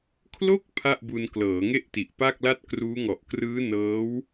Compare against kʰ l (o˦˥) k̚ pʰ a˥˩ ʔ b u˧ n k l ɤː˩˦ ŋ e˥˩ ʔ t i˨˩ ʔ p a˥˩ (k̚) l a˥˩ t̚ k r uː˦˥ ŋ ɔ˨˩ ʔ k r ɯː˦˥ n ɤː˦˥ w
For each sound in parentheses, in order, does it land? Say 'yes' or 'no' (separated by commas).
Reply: no, yes